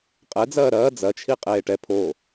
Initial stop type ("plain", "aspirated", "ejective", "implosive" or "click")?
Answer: ejective